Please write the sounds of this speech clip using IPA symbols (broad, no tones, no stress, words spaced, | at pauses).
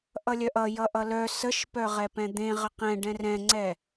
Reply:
ʔʌlʲœʔʌ jʌʔʌlœ səʃpœ ʁɛpɛ̃d̪ẽ ʁəqɛ̃ ɖɛ̃rɛ̃ŋ͡ǀɛ